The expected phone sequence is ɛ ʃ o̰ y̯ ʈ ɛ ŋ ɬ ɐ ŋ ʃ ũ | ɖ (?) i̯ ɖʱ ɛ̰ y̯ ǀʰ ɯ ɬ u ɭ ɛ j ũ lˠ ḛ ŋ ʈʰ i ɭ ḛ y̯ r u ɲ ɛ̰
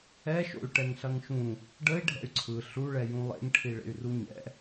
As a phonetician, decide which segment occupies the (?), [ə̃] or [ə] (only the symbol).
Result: ə